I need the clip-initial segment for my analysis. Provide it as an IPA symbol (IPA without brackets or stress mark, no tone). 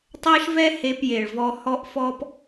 tˤ